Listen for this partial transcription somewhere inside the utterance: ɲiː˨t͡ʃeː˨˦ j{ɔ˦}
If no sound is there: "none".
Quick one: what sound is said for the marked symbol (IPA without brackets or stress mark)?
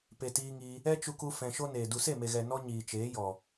ɔ˨